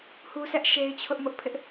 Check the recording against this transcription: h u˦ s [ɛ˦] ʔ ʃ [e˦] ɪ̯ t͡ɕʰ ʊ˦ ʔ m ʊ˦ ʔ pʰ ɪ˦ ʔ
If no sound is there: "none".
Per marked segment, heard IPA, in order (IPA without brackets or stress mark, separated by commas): ɛ˦, e˦